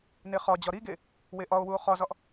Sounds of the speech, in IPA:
n e χ ɒ d͡ʑ ɒ ɾ i ɡ e | w e ʔ ɒ o̯ w u o̯ χ ɒ z ɒ ʔ

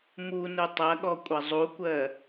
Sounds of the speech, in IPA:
m u n u tˤ ɐ ɠ ɔ kʷʼ ɐ zˤ u kʷ ɜ

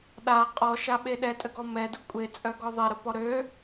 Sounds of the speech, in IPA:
ɗ a qʼ ɔ ʃ a ɓ e ɗ ɛ tʼ ə ɡ ɔ m ɛ d u kʷʼ e t͡sʼ œ ɡ ɔ ðˤ e ɾ ə p ɔ ɾ ø

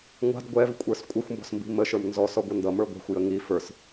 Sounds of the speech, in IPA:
ŋʷ a̤ d ɡʷ ɛ v kʷʼ ə˞ s kʷʼ ʌ xʷ m b ɔ̤ s m b i̤ m ə ʃ ə˞ m n z ɔ s ɔ ɡʷ ʌ n d ʌ m ə˞ ɡʷ a̤ xʷ j ə ŋ i f ə˞ s

